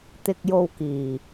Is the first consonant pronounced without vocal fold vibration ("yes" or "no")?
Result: yes